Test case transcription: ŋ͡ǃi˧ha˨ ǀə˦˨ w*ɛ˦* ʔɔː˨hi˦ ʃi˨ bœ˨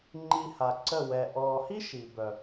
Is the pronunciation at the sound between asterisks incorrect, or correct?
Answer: incorrect